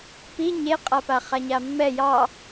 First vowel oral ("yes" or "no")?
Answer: yes